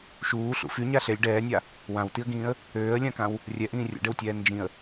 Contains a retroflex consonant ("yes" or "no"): yes